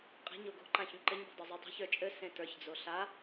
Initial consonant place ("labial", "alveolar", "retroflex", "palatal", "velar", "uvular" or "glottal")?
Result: uvular